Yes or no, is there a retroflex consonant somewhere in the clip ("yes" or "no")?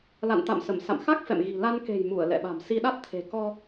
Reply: no